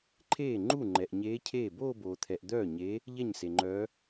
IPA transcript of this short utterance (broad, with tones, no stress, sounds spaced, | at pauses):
ǃʰ eː˥˩ ŋ͡ǃ u˥˩ ŋ͡ǃ ɛ˨ ʔ ɲ eː˧˥ cʰ eː˥˩ b oː˥˧ b oː˨ t̪ʰ ɛ˨ ʔ d̪ œː˥˩ ɲ e˧˥ | ʎ ɛ˥˩ ɲ s e˨ ŋ͡ǃ œː˧˥